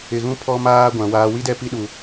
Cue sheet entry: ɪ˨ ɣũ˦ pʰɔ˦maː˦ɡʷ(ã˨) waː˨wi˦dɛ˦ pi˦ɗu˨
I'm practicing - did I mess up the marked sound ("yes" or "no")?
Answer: no